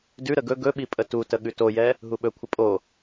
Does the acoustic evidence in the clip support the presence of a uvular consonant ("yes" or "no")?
no